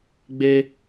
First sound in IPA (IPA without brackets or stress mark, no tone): ɡ͡b